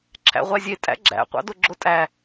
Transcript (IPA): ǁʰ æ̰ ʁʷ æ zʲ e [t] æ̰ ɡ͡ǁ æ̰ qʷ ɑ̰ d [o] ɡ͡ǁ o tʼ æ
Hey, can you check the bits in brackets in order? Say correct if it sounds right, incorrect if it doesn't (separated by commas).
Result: incorrect, correct